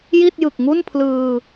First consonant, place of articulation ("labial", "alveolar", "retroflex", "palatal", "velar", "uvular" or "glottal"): palatal